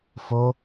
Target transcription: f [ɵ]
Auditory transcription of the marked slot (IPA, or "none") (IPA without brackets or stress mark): o